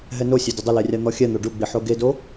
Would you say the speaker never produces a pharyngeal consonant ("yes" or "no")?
no